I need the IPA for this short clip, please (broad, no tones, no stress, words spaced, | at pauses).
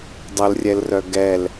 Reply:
dˤəlrʲɛlrœ ɡɛl